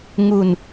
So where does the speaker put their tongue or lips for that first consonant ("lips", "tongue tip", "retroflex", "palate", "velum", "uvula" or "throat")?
velum